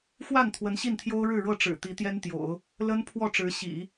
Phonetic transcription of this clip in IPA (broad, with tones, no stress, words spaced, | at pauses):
xwa˥˩n t̪ʰwə˧˥nɕi˥˩nt̪ʰjo˥ʊ̯ ɻɻ̩˥˧ɻɤ˥˩ʈ͡ʂɻ̩˨˩ t̪i˧˥t̪jɛ˥nt̪jo̰˨˩˦ʊ̯ | lə˥n pʰwɔ˥˩ʈ͡ʂɻ̩˧˥ɕḭ˨˩˦